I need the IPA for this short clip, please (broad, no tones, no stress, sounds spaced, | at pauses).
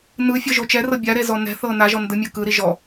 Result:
n ɯ fʲ ɤ ʒ o t͡ʃ ɛ r ɤ bʲ a ɾ e z ɔ n ɛ̤ θ ɤ n a ʒ ɔ n d ɯ mʲ ɤ k ɯ ɾ i ʒ ɔ